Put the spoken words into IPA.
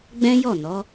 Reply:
ɡ͡b ɛ̃˦ j ɔ˦˨ n ɔ˨˦

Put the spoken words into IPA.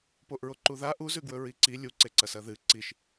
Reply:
p o ʔ ɹ o ǃ u ð a ʔ u z ʉ ɡ w ɵ ɹ i ǀ i lʲ u ǀ e ǀ ɐ s ɐ ð ɨ ǀ i ʃ

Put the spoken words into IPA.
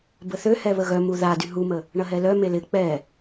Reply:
b ə θ ø h ɛ β ə ɣ œ m u ð a d y ɦ u m ə | ɳ ɐ ɦ ɛ l œ m e l ɪ k͡p ɛ

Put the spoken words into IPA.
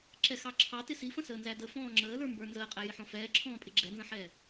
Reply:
ǁ ɛ x ɑ ǁʰ ɑ t ɪ s i f ə̃ s əː n z æ d ə f ɔ̃ː ŋ͡ǁ əː l ə˞ m b ə˞ n z əː qʼ æ j ɪ ħ ɔ̃ f ɛː ǁʰ ɔ̃ː pʼ ɪ ɡ͡ǁ ɛ n z ə̃ ħ ɛː

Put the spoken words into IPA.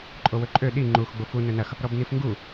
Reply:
ǃʼ o w ɵ ǃʼ ø ɗ i ŋ͡ǃ u x ɡ͡b o f u n ɵ n ɐ x | ɾ ɔ b n i f ŋ ɡ u

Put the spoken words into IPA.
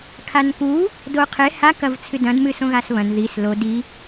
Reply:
kʰ a n k u | d o qʰ e h a k ɐ v t͡sʰ ɨ d ɐ̃ d m ɨ s õ ɣ a s β ɐ̃ n ð i s l o d i

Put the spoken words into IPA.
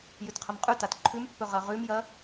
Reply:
j ʉ t qʰ ɐ m qʼ ʉ t a t ǃʰ ʉ m pː ɵ ʁ ɐ ʁ ʉ m j ɐ

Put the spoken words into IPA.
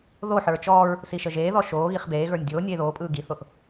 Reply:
ð o ħ ə˞ t͡ʃ ɔː ɹ | s i ʃ ə ʒ eː ð ɔ ʃ oː ɣ i χ b eː ɣ ə˞ nʲ dʲ oː nʲ eː ð oː pʼ ɯː ɡ i θ o θ

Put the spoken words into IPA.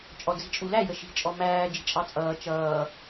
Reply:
t͡ʃʼ ɔ d͡z i̤ t͡ʃʼ u l æ j ə ʃ i̤ t͡ʃʼ ɔ m æː d͡ʒ i̤ t͡ʃʼ ɑ t͡sʼ ʌː t͡ʃ ʌː

